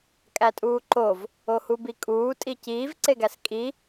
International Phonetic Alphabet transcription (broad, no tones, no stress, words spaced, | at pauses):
kʼætʼuːǃov | ohubikʼuː tʼiciːv ǀeɡæskʼi